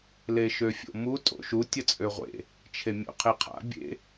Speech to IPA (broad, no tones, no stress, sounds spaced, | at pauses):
l e ʃ ø fʲ o̰ m u tʼ o̰ ʃ u tʲ ə t͡sʼ ø ʁʷ ḛ | t͡ʃʰ e mʲ o̰ qʰ e qʰ a̰ bʲ ḛ